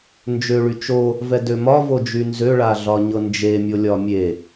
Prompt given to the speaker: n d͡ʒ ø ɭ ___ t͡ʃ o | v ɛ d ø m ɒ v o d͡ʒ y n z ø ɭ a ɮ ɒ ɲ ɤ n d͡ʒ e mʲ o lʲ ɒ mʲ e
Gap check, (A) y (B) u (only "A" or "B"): A